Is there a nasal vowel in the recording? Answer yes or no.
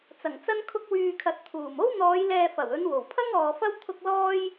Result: no